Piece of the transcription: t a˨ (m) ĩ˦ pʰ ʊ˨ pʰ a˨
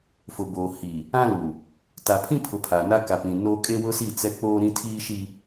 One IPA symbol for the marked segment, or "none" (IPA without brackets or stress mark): pʰ